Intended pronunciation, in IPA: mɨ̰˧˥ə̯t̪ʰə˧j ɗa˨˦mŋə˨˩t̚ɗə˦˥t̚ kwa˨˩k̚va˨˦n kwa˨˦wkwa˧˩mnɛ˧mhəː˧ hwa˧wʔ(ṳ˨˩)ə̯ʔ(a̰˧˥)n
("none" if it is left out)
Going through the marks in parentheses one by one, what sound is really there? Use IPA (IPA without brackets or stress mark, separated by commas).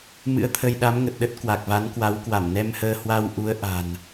u˨˦, a̤˨˩